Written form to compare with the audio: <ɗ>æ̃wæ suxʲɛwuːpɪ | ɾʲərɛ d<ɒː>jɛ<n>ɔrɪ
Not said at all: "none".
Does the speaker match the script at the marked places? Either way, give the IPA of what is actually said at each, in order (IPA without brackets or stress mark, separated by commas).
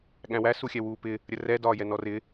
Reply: ɠ, ɒː, n